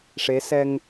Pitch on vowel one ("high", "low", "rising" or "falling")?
rising